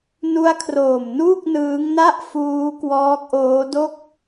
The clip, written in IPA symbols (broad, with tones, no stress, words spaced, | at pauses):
nu˦˥a̯kʰroː˨˩m nuː˥˩k̚nɯː˦˥ŋ na˥˩ʔ fuː˦˥kwɔː˦˥k̚ ʔoː˦˥do˥˩k̚